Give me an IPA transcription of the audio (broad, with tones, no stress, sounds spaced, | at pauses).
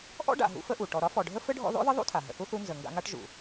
ʔ ɔ̰˥ ɖ a̰˨ ɦ ṵ˦ f ə˦ ʔ u˩ ʈ ɔ˨ ɾ ɒ˥ f ɔ˨ ɖʱ ə˥ f ɘ˥ ɖʱ ɔ̰˦ ð ɔ̰˥ ð ə˥ ðˤ ṵ˥ tʰ a˩ ɦ ə̰˨ θ u˥ θ u˦ n z ə˨ ŋ ɡ a̰˦ ŋ a˥ ʈ ʒ ṵ˩